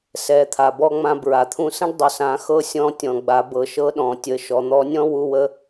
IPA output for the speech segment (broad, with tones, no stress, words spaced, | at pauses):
sɛ˩˧t̪ʰa˩bɔ˧ŋ͡mã˧ bɹa˩t̪ʰũ˧sə̃˥ɖ dˤʊ˩sã˩˧xɤ˧˥ sʲɔ̃˧tʲɔ̃˩ ɡ͡ba˩˧bɤ˩˧ʃɤ˧˥ɗɔ̃˩ tʲə˩˧ʃɔ˩n̪ɔ˧˥ nʲɔ̃˥wu˧wə˧˥